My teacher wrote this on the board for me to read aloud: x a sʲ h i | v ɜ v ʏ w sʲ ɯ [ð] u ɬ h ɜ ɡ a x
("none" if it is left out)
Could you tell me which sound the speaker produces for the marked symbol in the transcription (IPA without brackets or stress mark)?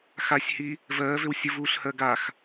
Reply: v